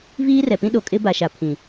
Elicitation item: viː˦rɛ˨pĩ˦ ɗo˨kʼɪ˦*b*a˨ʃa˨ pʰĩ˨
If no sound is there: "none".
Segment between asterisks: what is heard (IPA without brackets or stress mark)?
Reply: b